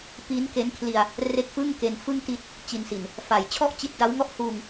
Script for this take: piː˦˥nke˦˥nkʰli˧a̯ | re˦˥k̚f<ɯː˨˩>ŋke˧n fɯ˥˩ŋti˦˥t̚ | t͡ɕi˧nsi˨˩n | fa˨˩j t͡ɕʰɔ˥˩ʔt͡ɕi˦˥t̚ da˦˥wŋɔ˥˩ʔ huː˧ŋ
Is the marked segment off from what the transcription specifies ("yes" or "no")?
yes